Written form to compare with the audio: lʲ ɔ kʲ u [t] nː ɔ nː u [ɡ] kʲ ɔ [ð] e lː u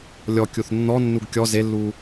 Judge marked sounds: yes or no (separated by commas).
no, yes, no